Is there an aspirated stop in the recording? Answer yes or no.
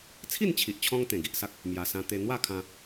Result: yes